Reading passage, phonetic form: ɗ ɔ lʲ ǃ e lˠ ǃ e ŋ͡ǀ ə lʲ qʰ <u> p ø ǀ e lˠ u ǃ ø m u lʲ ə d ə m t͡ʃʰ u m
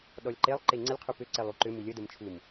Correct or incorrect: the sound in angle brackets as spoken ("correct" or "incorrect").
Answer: correct